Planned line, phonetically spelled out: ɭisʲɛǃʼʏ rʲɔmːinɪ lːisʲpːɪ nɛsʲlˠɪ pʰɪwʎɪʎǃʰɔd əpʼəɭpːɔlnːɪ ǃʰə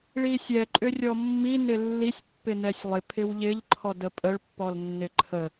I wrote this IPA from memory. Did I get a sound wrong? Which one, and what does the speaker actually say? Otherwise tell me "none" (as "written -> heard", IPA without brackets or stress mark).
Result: none